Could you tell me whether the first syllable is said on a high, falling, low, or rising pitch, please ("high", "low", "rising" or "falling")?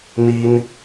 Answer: high